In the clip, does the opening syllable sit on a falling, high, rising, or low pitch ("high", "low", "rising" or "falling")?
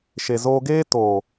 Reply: low